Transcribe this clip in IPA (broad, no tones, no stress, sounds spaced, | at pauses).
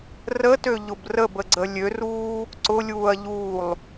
r ə t ø ʎ ʊ b r ə b ə ɡ͡ǀ ə lʲ ø r uː | ǀ ʊ lʲ uː ɐ̯ ʎ uː lˠ